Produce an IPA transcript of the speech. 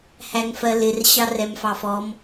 h æ ŋ f ɜ l ɪ r ɕ ɑ r ɛ m f ɑ f ɔ m

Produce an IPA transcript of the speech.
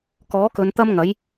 k ɔː˨˥ k ɵ˨˧ n t̪ ɐ˥ m ŋ ɐ˨˥ j

